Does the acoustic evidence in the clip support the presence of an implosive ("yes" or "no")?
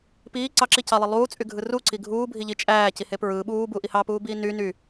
yes